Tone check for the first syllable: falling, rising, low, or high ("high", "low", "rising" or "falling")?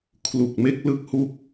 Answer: low